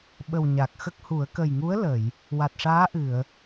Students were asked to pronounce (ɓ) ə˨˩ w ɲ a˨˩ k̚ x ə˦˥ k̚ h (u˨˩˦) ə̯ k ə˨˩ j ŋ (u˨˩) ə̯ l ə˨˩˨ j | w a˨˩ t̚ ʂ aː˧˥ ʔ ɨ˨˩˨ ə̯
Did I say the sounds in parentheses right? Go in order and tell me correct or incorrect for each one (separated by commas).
correct, correct, incorrect